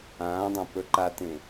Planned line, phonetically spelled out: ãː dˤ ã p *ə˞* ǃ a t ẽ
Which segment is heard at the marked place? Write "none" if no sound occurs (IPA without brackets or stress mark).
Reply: ə˞